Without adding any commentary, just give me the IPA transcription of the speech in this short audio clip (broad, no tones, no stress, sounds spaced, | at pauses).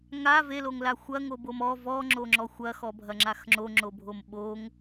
ŋ a v e l o ŋ l a xʷ ɐ ŋ o b o m ɔ v ɔ ŋ͡ǁ o ŋ͡ǁ ɔ xʷ ɐ x ɔ bʱ ɐ ŋ͡ǁ a x ŋ͡ǁ o ŋ͡ǁ o bʱ o m ɓ o ŋ